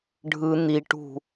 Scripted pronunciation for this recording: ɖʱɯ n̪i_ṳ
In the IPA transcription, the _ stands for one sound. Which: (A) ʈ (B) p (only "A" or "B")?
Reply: A